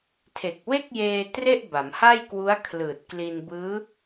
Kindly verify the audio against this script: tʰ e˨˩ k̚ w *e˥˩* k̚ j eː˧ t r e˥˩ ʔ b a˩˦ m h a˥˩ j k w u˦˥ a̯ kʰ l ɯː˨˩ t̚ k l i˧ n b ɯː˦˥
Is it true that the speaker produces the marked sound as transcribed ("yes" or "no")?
yes